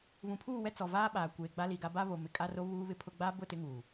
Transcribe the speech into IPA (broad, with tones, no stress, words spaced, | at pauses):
βũ˨pʰuː˦˨wɛ˦ t͡sɔ˨vaː˦ ɓaː˨kʷeː˨ ɡ͡ba˦li˨ɡa˦ ba˦βo˨ mɪ˨kʼa˦ro˦ βuː˦βɪ˦pʰʊ˦ ɡ͡ba˦bʊ˦˨ tɪ˦ŋuː˨